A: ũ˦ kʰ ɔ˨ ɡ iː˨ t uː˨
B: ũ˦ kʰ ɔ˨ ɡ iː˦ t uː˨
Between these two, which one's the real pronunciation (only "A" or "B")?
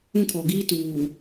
B